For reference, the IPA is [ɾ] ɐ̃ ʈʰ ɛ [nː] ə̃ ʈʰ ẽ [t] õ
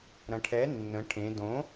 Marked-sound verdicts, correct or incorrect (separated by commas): correct, correct, incorrect